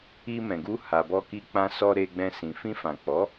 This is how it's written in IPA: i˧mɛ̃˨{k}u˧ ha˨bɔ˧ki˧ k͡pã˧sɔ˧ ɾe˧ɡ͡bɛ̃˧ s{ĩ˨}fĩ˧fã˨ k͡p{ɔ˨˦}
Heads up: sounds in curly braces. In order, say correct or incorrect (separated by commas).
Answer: incorrect, correct, correct